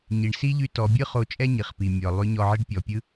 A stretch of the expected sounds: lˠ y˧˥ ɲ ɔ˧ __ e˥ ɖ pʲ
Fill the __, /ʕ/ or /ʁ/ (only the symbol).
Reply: ʕ